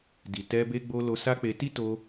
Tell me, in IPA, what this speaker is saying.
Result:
d i˨ t ɛ˧ b e˧ ɡ͡b o˧ l o˧ s a˦ k͡p e˧ t i˦ t o˧

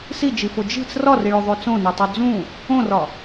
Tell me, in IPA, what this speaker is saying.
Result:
s i d͡ʒ i f o d͡ʒ i̤ t͡s r ɒ r i ɭ o ðˤ o t͡s õ n o tˤ o d͡z ũ | õ r ɒ

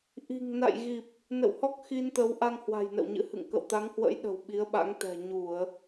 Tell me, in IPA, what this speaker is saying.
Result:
ʔ i̤˨˩ ŋ n a̰˧˨ j ɣ i˨˩ p̚ | n ə̰˧˨ w h ɔ˦˥ k̚ x i˧ n t̪ ə˨˦ w ʔ a˧ ŋ h w a̤˨˩ j n ə̰˧˨ w ɲ ɨ̰˧˥ h ɨ̰˧˨ ŋ k ə̰˧˨ w t̪ a˨˦ ŋ h w ə̰˧˥ j ɗ ə̤˨˩ w ɓ i˨˦ ə̯ ɓ a̰˧˥ ŋ t̪ ɛ̤˨˩ ɲ u˧˩˨ ə̯

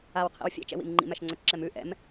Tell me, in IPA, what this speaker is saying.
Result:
a w qʰ ḭ w fʲ ɛ̰ t͡ʃ ɛ̰ w ḭ m ŋ͡ǃ ḭ m æ ʃ ŋ͡ǀ œ t͡ʃ ǁ ɛ m ʉ ʔ ɛ̰ m

